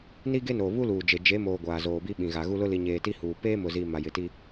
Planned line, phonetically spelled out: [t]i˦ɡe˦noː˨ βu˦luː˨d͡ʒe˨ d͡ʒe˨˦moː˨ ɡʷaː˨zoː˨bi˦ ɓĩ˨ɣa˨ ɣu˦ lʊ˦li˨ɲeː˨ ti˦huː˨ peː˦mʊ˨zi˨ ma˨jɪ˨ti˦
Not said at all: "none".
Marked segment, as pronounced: n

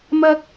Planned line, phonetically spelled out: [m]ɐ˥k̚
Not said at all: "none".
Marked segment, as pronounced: m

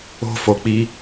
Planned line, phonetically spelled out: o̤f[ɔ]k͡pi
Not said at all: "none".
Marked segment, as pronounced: o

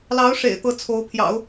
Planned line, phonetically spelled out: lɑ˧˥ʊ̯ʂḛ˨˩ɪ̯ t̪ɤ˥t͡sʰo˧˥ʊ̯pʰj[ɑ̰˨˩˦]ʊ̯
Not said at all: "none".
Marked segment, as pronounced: ɑ̰˨˩˦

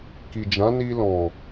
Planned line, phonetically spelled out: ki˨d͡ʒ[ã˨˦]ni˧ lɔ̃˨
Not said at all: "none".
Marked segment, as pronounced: ã˨˦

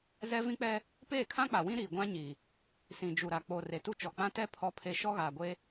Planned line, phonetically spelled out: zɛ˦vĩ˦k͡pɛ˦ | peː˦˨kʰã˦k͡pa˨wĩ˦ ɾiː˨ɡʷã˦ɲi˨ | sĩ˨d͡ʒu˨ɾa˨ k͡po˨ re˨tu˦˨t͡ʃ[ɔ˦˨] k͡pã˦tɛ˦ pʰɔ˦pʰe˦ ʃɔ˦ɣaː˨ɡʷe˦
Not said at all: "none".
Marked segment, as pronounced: ɔ˨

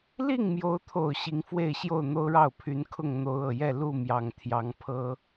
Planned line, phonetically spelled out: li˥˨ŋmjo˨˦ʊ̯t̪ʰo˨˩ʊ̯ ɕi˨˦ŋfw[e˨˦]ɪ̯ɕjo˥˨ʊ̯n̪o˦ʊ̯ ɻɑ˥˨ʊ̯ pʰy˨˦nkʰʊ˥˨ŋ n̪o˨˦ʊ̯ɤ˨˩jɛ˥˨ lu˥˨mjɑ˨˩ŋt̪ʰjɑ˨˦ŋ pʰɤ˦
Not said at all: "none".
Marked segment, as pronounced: e˥˨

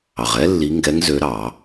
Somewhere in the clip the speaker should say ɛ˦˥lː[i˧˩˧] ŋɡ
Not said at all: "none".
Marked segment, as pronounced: i˨˦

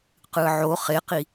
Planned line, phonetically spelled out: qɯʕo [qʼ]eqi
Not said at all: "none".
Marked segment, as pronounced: χ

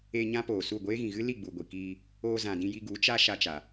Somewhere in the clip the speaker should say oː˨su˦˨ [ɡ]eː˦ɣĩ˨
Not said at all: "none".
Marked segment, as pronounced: ɡʷ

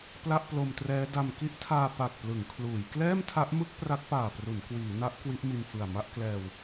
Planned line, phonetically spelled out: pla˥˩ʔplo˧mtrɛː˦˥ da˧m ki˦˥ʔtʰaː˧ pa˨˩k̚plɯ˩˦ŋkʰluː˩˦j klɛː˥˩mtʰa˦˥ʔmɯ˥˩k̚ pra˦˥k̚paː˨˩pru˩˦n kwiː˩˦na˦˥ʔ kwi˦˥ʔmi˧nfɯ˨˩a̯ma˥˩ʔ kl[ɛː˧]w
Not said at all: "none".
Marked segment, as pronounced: ɛː˧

